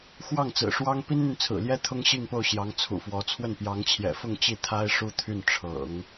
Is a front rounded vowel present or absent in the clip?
present